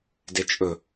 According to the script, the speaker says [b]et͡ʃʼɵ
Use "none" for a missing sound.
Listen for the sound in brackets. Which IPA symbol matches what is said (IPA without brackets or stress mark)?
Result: d